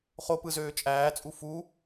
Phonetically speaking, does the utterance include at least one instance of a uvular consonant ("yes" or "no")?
yes